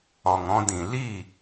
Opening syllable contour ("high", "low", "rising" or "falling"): low